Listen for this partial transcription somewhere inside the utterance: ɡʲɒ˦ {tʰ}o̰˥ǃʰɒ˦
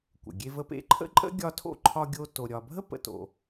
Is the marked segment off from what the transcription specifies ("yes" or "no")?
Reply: no